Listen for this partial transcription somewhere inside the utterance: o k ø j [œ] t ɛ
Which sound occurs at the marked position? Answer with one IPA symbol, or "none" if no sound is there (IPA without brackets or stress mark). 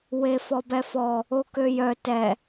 œ